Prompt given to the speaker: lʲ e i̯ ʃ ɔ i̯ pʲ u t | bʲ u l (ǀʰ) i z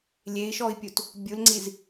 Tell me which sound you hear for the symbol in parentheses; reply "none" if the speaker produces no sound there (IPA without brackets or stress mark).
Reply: ŋ͡ǀ